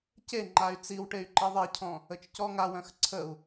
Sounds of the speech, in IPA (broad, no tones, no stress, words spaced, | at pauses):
ce ŋ͡ǃay̯t͡siwʈey̯ ǃiðˤecʰɔ̃ | ət͡ʃcɔŋawœ̃x ǀʰəu̯